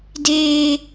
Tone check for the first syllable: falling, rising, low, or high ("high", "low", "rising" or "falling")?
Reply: high